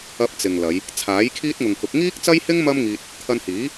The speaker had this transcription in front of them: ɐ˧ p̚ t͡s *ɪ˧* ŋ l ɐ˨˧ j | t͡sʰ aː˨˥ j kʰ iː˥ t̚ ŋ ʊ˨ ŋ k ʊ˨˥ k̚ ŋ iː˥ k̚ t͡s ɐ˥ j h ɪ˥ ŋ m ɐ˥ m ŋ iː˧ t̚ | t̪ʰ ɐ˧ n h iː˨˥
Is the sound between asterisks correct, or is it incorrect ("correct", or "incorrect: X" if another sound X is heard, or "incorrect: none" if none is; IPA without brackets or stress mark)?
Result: incorrect: ɪ˨